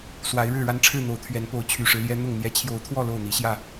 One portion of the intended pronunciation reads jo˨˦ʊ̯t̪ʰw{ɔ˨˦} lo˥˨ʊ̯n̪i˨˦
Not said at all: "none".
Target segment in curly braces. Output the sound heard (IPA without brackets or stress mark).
ɔ˥˨